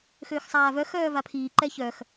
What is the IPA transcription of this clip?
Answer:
xøːxsˤaːvœ xœːvapʰiː ǃɛçœx

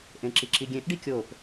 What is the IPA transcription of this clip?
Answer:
ʔẽǁiǁiɡʲẽʔ ɖikʲop

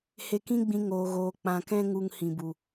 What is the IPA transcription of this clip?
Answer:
he˧kĩ˦ɡ͡bĩ˧ ŋoː˧ɣoː˧k͡pã˧ kɛ̃˦ ŋu˧ŋhĩ˨bu˨

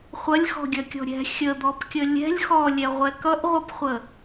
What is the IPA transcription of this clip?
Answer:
χʷɐlʲxɔ̤ɡʲɐkʲɔ̤ ɾʲɛ̤ xʲəd̪ɔpkʲə lʲɛ̤lʲ xɔlʲɛʁʷɛ kʌʔʁʷʌpχʷə

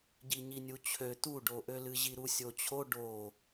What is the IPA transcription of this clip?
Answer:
ɟiɲinʲut͡ɕʰø t̪uɖoʔølɨ ʑiɾusʲot͡ɕʰo ɖo

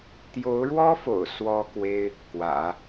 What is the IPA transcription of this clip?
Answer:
t̪jo˧˥ʊ̯ɻwɔ˥fo̰˨˩ʊ̯ swɔ˥kwe˥ɪ̯ | kwä̰˨˩˦

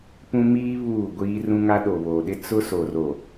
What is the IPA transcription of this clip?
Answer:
pũ˦miː˦ βuː˦˨ɡʷiː˦rũ˦ŋa˦ ɗo˨βo˨ɗɪ˦ t͡sʊ˦so˨ro˨

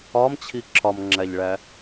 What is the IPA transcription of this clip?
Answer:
ɒmt͡ɕʰi ǁʰɒmŋ͡ǁæʎɭæ

